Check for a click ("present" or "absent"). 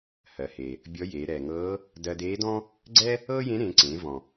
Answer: present